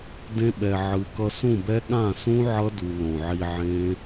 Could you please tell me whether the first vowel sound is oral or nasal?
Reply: nasal